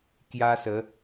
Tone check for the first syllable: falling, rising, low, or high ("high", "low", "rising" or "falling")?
high